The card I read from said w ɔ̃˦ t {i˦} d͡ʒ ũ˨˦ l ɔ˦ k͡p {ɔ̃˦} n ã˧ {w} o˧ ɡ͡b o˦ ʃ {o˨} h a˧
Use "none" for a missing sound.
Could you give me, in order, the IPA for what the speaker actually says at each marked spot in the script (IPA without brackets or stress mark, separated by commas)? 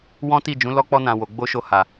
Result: i˦˨, ɔ˦, w, o˦˨